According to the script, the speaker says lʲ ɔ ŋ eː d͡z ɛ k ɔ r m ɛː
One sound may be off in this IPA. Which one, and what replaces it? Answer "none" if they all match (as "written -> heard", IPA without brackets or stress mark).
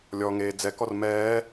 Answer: none